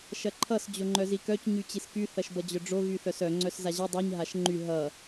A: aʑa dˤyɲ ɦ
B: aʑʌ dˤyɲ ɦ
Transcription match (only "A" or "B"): B